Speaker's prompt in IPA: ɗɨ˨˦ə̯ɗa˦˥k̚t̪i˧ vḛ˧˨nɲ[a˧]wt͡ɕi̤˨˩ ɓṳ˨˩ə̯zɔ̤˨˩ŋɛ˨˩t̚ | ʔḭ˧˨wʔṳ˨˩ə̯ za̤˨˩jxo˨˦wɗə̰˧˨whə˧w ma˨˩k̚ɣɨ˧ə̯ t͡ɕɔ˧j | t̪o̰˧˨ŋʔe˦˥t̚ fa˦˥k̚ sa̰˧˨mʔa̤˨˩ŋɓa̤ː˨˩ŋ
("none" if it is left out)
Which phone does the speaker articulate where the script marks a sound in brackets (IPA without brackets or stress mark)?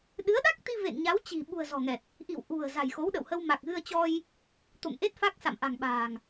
a˨˦